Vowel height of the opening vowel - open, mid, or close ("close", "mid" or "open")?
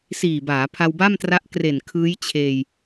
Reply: close